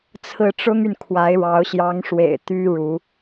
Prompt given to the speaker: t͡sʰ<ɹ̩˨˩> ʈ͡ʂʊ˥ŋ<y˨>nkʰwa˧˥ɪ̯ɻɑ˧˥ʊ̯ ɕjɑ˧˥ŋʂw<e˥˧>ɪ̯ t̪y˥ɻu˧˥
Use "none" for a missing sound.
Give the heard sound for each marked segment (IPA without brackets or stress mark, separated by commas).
ɹ̩˥˩, y˨, ḛ˨˩